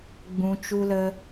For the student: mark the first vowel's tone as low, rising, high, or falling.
low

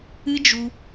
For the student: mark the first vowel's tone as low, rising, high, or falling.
high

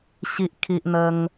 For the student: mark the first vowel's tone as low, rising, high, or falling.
high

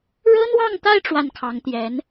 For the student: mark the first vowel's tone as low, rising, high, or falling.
high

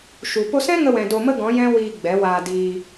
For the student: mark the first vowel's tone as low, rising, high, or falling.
low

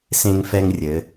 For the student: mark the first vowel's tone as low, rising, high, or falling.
high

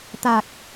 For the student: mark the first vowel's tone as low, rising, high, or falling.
low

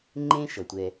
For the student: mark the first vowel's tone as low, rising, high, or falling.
high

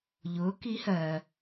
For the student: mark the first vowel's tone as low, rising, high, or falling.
rising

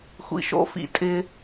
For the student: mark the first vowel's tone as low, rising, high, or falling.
low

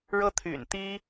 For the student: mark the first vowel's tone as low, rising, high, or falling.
high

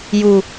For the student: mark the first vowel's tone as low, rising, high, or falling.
high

